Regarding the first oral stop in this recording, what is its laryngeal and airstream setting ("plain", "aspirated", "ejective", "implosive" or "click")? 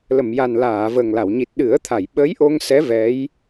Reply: plain